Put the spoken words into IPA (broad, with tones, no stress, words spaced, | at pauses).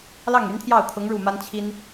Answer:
lɑ˥˩ŋ y˧˥nt̪ʰjɑ˥˩ʊ̯t̪ʰʊ˧˥ŋ ɻu˥˩ma˥n t͡ɕʰi˥n